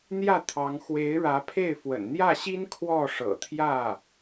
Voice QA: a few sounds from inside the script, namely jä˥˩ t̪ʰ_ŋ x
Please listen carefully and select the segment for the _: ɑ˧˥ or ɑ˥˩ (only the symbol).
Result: ɑ˧˥